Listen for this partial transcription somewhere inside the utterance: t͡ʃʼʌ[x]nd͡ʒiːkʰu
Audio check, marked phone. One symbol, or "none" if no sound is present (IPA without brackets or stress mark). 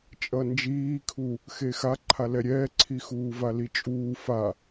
none